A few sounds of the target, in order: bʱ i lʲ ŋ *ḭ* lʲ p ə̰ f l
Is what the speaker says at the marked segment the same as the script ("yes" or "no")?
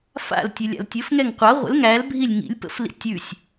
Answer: yes